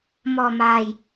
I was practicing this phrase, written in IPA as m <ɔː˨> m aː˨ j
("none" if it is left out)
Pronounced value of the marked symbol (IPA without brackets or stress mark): ɔː˨